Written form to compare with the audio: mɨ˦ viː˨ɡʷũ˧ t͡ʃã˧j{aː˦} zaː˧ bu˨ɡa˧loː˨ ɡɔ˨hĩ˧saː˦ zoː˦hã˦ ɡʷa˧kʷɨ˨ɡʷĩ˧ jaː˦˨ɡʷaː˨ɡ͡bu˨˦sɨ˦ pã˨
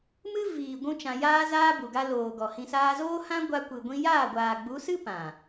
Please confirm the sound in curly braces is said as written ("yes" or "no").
yes